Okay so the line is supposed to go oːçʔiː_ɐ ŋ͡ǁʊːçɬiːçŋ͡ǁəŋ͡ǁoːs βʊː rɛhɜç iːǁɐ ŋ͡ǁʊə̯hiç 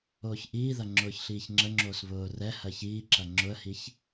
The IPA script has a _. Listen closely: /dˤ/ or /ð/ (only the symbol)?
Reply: ð